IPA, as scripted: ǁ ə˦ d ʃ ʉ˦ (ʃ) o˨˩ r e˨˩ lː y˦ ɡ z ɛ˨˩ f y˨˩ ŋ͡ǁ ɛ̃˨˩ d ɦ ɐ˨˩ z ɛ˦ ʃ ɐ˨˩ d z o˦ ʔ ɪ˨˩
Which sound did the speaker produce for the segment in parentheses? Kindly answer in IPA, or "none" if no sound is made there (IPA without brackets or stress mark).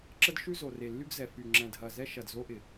z